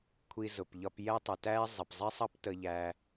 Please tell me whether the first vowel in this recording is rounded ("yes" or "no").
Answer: no